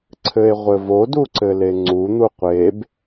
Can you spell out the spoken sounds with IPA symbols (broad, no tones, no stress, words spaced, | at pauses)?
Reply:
ǀʰɘe̯ʁʷɘvo duǀɘleŋ͡ǀu n̪uqʷeb